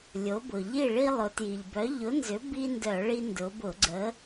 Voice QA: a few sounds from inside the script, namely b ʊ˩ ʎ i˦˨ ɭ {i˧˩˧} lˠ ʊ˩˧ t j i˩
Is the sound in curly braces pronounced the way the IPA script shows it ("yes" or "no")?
no